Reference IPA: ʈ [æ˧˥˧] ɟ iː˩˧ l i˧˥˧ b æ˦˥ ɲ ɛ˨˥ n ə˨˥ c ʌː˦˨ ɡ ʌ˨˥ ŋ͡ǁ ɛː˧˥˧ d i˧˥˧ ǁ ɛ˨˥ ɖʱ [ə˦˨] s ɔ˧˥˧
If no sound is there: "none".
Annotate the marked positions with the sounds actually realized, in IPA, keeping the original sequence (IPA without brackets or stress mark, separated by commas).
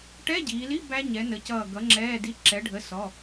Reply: ɛ˧˥˧, ə˧˥˧